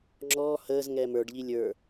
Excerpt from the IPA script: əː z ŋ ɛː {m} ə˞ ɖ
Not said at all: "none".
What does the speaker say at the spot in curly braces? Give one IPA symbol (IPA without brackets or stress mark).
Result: m